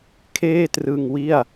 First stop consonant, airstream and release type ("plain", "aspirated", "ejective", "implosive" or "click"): aspirated